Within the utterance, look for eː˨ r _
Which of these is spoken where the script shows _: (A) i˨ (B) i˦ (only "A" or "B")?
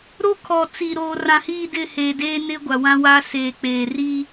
B